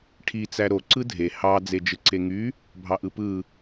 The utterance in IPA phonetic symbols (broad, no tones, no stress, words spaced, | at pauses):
ʈʰi t͡sæɾo ǀɯdʱe hɑ d͡zed͡ʒɯǀeŋy | bʱɑʔɯpɯ